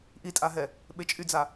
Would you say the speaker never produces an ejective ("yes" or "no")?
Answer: no